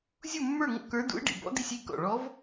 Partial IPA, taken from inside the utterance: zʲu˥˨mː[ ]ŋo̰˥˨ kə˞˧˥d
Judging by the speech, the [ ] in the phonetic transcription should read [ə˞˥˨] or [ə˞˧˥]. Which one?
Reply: ə˞˥˨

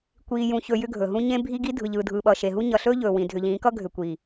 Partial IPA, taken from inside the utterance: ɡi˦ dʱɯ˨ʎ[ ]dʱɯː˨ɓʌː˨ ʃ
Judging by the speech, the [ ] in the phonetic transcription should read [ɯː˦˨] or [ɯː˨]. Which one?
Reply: ɯː˨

